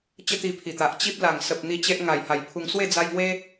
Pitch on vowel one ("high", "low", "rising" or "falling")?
high